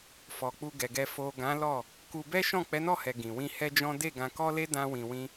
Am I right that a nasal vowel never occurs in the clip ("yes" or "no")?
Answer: no